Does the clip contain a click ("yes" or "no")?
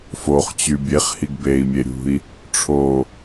no